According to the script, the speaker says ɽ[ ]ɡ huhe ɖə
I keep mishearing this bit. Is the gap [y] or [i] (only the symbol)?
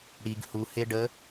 i